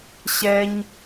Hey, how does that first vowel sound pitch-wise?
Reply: high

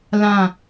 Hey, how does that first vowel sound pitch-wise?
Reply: falling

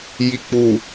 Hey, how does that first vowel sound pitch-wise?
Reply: low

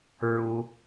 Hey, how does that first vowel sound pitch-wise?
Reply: low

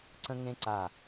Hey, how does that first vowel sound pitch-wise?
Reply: high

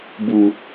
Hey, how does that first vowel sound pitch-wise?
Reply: low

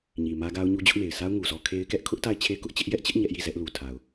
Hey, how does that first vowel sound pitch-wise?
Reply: low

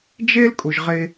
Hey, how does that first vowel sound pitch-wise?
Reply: high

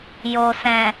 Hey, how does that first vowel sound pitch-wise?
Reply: low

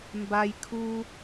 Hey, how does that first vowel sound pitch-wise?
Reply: low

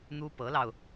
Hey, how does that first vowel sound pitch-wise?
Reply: high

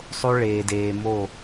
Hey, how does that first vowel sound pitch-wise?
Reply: high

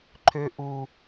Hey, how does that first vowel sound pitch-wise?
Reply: high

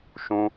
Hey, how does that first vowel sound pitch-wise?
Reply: high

